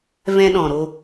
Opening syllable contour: high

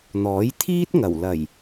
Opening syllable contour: rising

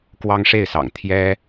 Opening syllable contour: high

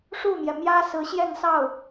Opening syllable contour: falling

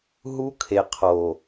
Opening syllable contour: high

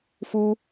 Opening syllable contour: high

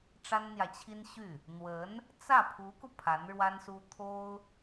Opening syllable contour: high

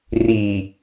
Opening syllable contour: low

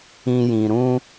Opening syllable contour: high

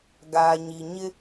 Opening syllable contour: low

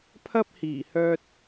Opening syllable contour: high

